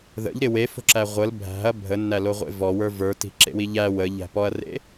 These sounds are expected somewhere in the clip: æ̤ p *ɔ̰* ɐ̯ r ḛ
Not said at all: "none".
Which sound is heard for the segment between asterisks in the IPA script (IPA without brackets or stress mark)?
ɔ